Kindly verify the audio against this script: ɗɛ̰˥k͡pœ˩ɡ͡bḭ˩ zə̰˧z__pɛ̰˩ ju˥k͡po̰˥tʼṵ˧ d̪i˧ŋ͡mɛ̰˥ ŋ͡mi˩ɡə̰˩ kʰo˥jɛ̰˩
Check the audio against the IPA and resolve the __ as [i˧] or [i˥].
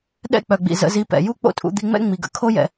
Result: i˧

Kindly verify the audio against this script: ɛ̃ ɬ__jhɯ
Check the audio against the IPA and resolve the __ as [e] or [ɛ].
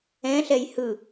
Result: ɛ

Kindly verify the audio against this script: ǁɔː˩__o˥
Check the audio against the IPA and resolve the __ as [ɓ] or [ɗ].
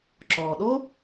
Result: ɗ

